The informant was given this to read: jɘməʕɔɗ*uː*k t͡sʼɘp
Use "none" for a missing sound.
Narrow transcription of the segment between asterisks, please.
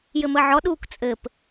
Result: uː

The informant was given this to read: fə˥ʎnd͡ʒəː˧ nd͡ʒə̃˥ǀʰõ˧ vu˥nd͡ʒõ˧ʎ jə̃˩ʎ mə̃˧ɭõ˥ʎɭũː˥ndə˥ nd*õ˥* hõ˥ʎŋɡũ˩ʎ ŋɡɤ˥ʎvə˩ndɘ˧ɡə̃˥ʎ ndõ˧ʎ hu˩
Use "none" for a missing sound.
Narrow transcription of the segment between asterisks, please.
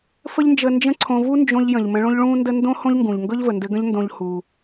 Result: õ˥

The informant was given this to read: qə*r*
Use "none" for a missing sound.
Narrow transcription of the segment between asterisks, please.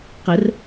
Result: r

